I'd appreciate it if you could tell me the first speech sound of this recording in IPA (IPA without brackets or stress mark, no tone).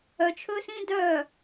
œ